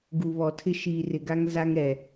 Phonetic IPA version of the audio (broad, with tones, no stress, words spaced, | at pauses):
ɡu˨βɔ˨tʰɪ˦ ʃiː˨rɪ˨ɡa˦ŋ za˦ŋɾɛ˨